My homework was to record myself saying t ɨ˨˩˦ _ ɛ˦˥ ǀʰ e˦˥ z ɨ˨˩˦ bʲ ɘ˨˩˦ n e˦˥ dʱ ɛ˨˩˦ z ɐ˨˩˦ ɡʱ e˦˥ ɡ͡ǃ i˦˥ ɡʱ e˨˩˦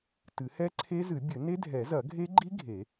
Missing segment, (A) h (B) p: A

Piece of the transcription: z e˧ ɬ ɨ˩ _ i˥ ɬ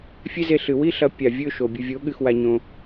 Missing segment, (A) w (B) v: A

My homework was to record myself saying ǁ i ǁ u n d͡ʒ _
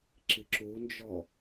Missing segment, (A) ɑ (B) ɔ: B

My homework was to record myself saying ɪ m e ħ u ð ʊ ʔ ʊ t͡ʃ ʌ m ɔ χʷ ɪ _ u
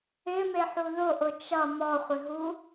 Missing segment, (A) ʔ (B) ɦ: B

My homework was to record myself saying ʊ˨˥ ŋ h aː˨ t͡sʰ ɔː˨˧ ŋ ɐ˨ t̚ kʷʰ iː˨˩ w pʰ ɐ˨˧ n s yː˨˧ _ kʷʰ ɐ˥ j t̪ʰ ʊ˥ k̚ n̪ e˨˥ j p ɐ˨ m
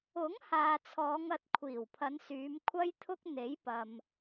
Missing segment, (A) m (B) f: A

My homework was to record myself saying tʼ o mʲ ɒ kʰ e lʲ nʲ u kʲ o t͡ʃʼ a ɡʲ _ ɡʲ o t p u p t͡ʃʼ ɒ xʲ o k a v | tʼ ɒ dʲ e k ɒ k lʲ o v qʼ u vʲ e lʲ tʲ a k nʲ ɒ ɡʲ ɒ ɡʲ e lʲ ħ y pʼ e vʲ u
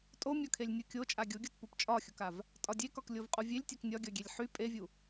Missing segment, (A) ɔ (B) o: B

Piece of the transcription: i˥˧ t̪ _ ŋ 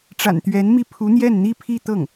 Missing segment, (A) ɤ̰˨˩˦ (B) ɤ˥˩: B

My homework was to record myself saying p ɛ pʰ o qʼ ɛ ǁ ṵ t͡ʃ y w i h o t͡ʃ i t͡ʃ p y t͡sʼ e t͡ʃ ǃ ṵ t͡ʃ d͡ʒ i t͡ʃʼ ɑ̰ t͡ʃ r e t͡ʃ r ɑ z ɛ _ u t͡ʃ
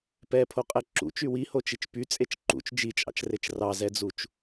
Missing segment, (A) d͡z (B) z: A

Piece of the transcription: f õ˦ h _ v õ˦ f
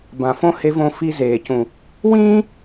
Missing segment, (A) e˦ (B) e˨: A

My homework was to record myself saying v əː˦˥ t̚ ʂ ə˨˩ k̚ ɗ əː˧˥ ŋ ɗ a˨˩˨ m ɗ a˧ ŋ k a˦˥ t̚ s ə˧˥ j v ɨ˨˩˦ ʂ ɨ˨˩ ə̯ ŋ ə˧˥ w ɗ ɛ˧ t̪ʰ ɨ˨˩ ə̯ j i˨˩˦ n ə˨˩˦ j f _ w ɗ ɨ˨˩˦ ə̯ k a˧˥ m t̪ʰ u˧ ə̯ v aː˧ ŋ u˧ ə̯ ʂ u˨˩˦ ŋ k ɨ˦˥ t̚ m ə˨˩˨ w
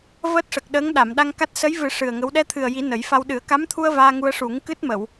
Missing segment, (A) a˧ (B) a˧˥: A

